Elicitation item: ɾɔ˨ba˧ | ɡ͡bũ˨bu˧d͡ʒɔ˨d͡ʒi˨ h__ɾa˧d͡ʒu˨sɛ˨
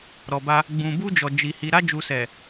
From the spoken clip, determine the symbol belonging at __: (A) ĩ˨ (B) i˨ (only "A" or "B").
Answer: B